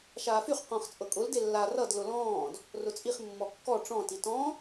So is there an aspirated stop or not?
no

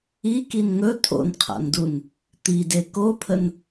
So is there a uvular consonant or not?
yes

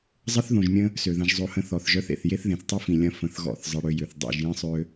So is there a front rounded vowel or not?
yes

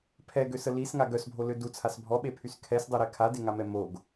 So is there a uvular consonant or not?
no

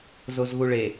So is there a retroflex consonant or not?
yes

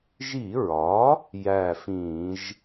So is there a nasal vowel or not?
yes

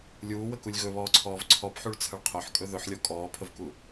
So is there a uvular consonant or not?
yes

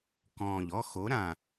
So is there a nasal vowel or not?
yes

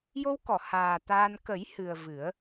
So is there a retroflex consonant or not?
no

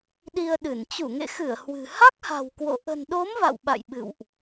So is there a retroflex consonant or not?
no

